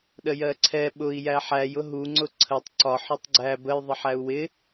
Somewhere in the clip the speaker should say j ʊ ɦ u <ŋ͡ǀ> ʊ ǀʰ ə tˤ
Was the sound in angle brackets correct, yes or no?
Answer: yes